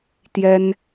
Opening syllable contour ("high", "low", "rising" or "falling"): high